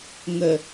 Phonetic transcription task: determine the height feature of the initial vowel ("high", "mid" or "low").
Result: mid